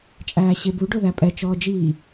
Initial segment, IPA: t͡ʃʼ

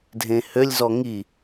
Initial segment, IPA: dʱ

